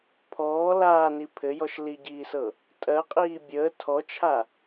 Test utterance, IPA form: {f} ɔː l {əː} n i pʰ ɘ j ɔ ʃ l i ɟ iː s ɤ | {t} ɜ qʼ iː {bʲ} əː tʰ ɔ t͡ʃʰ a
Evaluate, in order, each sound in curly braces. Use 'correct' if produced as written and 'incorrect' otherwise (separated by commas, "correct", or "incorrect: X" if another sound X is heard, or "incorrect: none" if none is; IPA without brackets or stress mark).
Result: incorrect: pʰ, incorrect: aː, incorrect: tʼ, correct